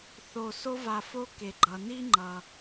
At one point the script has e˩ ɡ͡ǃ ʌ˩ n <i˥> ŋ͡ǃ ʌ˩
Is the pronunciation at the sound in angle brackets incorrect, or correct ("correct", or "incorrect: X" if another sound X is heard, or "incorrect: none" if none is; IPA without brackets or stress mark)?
correct